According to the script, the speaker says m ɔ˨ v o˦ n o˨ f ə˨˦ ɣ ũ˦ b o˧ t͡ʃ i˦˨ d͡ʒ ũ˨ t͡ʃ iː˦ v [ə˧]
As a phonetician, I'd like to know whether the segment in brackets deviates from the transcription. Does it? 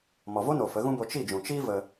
no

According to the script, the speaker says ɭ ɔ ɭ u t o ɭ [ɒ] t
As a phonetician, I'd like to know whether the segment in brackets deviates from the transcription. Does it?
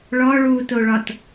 no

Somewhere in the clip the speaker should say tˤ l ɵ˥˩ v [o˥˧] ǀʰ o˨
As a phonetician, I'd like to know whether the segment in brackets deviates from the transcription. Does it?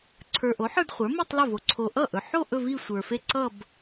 yes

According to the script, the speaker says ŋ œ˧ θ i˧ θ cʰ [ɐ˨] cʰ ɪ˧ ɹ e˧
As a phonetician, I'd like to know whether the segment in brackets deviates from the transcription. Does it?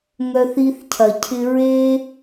no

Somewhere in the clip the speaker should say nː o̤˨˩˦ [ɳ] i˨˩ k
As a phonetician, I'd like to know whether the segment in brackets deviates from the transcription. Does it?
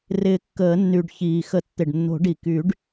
yes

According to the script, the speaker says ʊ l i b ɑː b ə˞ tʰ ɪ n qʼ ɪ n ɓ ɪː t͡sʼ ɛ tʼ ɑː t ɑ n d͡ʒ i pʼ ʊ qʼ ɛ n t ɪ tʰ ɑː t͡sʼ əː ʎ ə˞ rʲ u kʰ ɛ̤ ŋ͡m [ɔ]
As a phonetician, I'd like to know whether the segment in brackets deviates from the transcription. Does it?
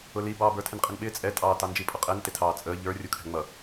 yes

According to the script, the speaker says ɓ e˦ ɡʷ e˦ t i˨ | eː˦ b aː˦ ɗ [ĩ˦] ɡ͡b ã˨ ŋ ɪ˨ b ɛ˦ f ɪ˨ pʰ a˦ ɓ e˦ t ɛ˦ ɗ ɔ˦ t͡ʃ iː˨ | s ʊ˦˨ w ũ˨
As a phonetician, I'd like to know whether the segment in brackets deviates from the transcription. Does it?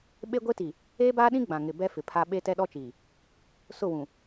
no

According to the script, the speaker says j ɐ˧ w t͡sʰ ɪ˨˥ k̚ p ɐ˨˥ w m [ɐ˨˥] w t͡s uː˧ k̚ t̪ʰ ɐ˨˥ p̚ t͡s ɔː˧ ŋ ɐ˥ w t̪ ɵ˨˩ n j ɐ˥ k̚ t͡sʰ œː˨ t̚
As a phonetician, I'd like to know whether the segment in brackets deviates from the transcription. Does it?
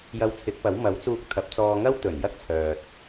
no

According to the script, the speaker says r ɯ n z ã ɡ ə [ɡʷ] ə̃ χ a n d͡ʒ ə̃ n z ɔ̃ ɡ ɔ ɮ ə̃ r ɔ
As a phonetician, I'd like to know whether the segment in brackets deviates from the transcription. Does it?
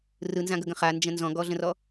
yes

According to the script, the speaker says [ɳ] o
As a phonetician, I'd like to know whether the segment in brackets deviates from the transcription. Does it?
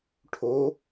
yes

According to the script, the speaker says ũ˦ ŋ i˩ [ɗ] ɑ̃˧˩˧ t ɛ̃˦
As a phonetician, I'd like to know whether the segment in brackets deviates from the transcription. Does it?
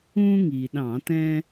no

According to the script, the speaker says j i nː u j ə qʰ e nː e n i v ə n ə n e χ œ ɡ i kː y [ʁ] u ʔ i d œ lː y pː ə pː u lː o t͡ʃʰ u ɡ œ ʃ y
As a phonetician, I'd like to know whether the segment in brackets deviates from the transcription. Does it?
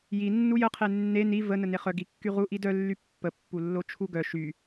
no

